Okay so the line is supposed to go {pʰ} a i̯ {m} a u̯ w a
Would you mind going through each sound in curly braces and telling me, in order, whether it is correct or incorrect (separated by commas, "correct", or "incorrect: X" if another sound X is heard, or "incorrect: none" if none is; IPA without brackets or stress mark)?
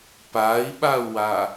incorrect: p, incorrect: ɓ